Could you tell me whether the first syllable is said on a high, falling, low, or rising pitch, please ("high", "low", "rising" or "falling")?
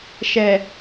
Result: low